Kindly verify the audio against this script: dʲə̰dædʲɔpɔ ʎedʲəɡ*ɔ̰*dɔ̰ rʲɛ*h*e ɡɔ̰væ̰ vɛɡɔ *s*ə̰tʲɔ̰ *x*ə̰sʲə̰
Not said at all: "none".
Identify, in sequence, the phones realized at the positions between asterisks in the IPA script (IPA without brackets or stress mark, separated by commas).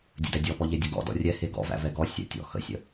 ɔ̰, h, sʲ, x